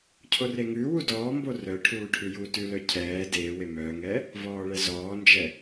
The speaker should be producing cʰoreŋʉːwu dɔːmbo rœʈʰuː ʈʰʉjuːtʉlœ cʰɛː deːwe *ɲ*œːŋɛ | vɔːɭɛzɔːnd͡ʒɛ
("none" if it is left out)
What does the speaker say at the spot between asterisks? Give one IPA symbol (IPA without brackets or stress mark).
m